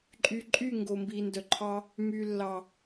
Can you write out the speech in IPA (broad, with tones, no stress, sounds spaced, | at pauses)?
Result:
ǃʼ y˨ ǃʼ y˦˨ ŋ ɡ o˨ m b i˨ n d œ˨ ǃʰ ɑ˦ | m y˨ lː ɑ˨